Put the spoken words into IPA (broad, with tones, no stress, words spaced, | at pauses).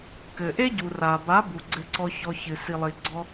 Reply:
kɘ˨ʔe˦ɟu˨ ra˨ba˨˦ bu˨ɡ͡ǀɘ˧ǀɔ˧ çɔ˧çɨ˨ si˨lˠi˨ ɡ͡ǀɔ˧